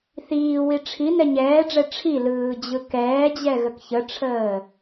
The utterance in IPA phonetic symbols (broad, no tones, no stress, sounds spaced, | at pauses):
θ iː w i ʈ͡ʂʰ i n ɛ ɲ ɛː ɖ͡ʐ ɛ ʈ͡ʂʰ i l ɯː d͡ʑ ɯ k ɛː d͡ʑ ɛ ɣ ə k ç ə ʈ͡ʂʰ əː